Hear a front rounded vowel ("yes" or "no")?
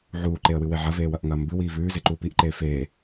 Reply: no